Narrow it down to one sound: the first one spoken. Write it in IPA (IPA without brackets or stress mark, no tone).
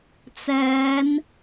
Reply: t͡s